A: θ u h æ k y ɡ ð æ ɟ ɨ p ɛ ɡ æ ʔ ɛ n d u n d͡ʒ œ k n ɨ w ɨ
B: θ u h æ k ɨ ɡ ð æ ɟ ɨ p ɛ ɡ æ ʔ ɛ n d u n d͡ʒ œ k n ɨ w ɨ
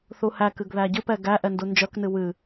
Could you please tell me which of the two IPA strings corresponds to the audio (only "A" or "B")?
B